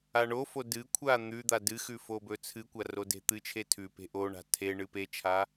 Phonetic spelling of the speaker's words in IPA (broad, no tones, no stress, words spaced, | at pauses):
aɳofo dɨkʷʰa n̪ʉd̪a dɨxʉ fobɵt͡sʰɨkʷa rode̤t̪ɨt͡ʃʰe tʰʉpe̤ ʔoɳa̤ tʰeɳɨ pet͡ʃʰa